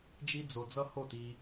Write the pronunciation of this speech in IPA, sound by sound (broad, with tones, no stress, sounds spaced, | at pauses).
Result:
d͡ʒ i˧ d͡z o˨ d͡z ʌ˧ h o˦˨ t i˧